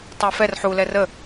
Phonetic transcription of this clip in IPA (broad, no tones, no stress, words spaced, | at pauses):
tˤafɛr ħulɛ rə